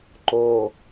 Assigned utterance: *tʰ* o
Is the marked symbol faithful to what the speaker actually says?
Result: no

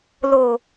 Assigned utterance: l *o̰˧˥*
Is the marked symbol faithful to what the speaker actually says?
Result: no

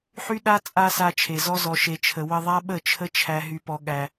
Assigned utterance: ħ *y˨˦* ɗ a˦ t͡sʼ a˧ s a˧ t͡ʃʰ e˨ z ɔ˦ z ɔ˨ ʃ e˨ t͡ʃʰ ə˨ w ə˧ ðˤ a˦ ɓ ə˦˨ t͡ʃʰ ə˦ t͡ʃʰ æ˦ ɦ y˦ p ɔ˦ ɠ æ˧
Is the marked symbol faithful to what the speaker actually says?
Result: no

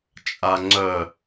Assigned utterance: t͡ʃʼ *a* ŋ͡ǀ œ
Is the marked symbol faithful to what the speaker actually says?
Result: yes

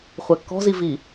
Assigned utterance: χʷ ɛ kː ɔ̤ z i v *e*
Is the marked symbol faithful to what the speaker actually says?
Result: no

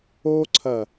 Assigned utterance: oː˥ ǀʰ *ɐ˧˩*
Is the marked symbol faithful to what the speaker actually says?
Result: yes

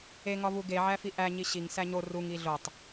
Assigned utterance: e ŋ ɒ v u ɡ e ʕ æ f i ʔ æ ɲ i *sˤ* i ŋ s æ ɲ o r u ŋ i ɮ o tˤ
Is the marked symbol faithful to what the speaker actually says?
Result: no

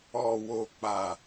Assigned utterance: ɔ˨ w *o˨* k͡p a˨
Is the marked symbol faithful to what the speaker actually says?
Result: yes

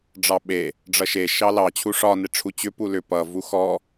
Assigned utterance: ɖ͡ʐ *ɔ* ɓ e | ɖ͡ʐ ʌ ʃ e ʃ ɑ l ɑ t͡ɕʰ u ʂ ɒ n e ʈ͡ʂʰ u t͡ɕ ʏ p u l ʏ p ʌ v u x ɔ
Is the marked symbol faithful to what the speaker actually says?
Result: no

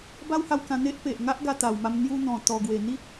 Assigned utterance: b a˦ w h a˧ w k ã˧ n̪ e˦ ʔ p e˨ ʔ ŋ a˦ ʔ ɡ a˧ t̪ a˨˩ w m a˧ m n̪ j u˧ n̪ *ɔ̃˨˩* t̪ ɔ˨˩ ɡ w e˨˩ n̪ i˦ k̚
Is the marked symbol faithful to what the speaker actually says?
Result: yes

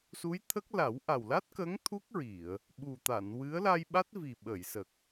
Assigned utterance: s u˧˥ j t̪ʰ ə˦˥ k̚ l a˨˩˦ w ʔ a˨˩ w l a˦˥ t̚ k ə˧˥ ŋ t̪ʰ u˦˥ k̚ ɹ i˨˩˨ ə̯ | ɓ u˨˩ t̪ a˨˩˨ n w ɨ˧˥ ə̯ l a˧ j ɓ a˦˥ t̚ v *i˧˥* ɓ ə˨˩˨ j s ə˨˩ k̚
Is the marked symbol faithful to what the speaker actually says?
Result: no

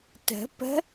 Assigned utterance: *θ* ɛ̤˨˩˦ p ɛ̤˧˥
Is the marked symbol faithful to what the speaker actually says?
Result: no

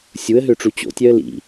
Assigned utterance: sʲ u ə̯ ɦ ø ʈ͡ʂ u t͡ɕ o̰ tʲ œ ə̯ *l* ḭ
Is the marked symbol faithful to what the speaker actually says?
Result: yes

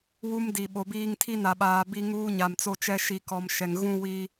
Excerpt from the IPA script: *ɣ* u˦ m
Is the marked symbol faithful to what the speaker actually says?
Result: no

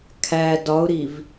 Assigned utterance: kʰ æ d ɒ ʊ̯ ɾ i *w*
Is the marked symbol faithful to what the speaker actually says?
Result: no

